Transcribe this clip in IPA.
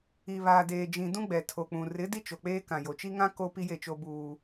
i˨ β aː˨ d eː˨ d͡ʒ ĩ˨ d ũ˦ ɡ͡b ɛ˨ tʰ o˨ k͡p ũ˨ r ɪ˨˦ d i˦ t͡ʃ o˨ k͡p eː˦ k ã˨ j o˨ t͡ʃ i˦ ŋ ã˦ k o˦ p i˦ j e˦˨ t͡ʃ o˦ b uː˦

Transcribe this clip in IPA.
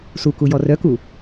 s u k u j ɔ r œ k u

